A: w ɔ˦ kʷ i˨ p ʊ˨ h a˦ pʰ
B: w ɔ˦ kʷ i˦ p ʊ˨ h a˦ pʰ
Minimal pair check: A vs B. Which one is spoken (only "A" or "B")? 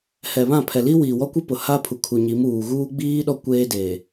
B